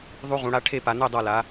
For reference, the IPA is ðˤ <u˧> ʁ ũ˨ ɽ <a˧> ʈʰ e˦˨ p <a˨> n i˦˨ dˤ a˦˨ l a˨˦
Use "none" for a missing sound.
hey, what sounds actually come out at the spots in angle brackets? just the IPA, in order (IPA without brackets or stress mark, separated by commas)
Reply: u˧, a˧, a˨